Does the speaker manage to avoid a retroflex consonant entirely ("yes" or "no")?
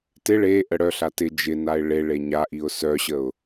no